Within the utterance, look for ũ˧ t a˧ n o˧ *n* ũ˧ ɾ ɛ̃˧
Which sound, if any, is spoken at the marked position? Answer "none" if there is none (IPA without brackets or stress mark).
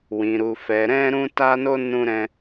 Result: n